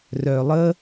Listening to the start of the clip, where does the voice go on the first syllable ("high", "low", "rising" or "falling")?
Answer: low